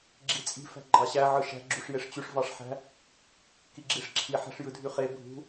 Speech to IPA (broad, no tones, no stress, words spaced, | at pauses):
ɡ͡ǁit͡sʼi̤ fæ̤ɡ͡ǃɑɕæ ʕɯʃæ̤ ɡ͡ǁuʂjeʂt͡ɕyʂ vɑʂħæ̤ | kiɡ͡ǁiʂǁʰi ħæ̤ʂjɯdʱyχe bʱṳ